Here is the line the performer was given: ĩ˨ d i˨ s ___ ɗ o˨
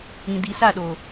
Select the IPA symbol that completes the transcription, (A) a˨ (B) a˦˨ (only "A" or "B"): B